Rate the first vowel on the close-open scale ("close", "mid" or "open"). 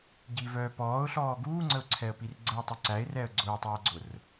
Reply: close